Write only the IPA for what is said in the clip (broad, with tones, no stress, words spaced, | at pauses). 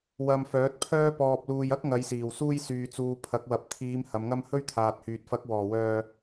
wɐ˧m fœː˨˥t̚pʰœː˥pɔː˧p̚luː˧j ɐ˥k̚ŋɐ˨˧jsiː˨˩w suː˥jsyː˧t͡suː˧ pʰɐ˨˥k̚wɐ˨˥p̚ t̪ʰiː˨˧m hɐ˨˧mŋɐ˥m hɵ˥ɥt̪ʰaː˨t̚hyː˨t̚ fɐ˨˥k̚ wɔː˨˩wœː˨